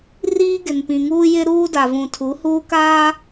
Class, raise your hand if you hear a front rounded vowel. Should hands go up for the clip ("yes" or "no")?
no